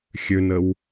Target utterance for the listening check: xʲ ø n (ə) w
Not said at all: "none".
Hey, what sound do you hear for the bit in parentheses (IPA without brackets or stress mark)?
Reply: ə